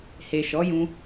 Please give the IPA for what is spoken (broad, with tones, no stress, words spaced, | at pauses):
he˨ʃɔ˨˦jũ˧